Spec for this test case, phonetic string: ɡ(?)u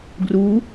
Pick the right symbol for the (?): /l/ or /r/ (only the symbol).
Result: r